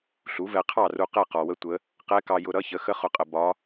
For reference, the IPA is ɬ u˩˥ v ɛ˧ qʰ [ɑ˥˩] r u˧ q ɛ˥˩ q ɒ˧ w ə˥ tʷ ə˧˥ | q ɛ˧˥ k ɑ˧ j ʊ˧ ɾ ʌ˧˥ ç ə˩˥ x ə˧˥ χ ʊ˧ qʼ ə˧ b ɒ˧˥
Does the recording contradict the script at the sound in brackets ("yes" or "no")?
no